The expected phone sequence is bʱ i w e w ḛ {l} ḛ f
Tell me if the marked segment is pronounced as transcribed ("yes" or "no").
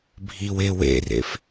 no